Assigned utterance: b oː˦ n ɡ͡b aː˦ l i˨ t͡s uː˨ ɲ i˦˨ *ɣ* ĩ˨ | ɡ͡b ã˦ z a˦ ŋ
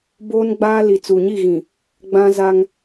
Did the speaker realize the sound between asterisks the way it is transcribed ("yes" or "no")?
yes